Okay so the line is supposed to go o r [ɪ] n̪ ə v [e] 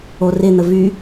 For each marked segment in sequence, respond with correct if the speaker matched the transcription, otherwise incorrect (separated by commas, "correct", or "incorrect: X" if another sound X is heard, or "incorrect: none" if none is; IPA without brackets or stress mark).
correct, incorrect: y